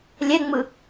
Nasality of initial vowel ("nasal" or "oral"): oral